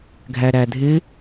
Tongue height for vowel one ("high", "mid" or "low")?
low